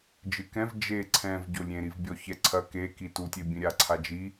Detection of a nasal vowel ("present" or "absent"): present